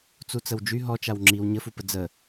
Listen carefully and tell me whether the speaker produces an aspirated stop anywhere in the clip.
no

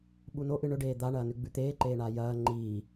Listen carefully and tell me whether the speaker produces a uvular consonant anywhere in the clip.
no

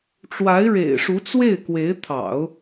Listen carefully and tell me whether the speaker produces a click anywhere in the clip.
no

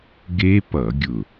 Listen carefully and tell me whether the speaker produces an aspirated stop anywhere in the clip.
no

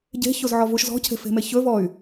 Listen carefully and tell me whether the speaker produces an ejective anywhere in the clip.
no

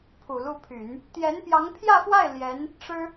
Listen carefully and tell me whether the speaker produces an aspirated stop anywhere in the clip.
yes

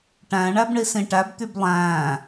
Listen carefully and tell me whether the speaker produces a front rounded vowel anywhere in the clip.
yes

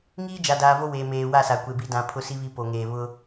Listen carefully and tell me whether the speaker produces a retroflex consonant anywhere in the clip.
no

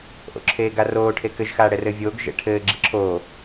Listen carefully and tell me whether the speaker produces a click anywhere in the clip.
yes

